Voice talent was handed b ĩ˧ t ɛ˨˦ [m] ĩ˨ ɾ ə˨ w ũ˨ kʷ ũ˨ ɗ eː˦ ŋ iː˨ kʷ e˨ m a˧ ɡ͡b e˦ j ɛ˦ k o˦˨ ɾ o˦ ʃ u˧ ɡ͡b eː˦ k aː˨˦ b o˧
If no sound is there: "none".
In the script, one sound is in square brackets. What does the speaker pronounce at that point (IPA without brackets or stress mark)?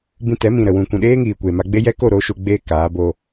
m